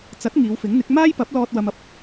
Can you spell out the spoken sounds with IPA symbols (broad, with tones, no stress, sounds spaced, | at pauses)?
t͡s ɐ˨˥ t̚ ŋ iː˨˧ w f ɪ˨˥ ŋ n̪ ɪ˨˥ k̚ m aː˥ j p ɐ˨˥ p̚ l ɔː˧ t̚ w ɐ˧ m ɐ˧ p̚